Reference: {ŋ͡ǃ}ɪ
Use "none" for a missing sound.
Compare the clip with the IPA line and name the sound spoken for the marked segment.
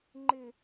ŋ͡ǃ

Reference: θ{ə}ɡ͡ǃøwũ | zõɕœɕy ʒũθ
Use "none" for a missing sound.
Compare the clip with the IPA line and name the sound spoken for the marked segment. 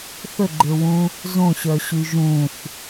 ə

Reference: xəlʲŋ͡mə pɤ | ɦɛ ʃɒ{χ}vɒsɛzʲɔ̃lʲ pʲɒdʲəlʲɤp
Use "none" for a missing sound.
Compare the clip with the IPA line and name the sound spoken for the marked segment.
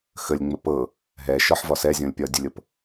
ħ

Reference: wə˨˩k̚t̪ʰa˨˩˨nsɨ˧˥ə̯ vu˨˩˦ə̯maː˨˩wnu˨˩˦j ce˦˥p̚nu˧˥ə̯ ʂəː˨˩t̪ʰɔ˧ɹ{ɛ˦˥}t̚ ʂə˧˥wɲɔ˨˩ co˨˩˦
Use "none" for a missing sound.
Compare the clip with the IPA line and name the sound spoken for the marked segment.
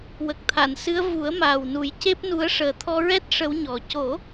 ɛ˦˥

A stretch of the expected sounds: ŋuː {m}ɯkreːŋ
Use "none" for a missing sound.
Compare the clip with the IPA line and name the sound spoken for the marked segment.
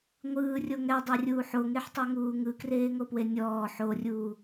ŋ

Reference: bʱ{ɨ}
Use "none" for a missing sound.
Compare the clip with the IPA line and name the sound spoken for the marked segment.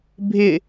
ɪ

